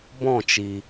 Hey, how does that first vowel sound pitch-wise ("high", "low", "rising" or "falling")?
falling